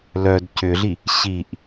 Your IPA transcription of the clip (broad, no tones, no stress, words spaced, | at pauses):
lœd cʏɮi | ɕiʔ